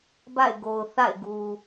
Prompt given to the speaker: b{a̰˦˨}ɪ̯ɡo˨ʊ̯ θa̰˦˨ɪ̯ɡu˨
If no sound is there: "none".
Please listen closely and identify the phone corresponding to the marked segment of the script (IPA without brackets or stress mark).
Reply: a̰˦˨